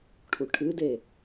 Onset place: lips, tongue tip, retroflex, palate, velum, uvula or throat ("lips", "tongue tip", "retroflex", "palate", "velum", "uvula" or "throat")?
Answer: retroflex